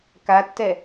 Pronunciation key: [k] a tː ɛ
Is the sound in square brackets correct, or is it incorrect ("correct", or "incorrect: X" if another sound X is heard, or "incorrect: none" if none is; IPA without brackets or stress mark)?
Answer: correct